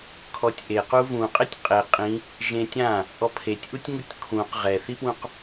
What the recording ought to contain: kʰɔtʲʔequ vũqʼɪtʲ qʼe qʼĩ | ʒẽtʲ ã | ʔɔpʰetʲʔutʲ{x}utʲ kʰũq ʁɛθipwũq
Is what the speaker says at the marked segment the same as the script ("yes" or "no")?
no